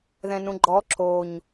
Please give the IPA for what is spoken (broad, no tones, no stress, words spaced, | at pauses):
ðɛ̃nũɡ͡ǃɔ ǁoɲ